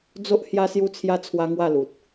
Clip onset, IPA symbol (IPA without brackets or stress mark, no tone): d͡z